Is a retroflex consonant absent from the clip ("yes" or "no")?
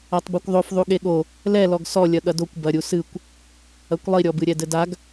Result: yes